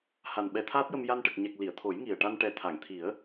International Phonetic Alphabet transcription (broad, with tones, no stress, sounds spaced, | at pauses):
h a˨˩ n ɓ ɛ˨˩˦ t̪ʰ aː˦˥ t̚ j ə˧ m j a˧ n ʈ ə˨˩ k̚ ɲ ɛ˨˩ k̚ l i˨˩˨ ə̯ t̪ʰ o˨˩˦ j ŋ i˨˩ ə̯ ʈ a˧ n ʈ ɛ˨˩ t̪ʰ a˨˩˨ ŋ t̪ʰ i˨˩˦ ə̯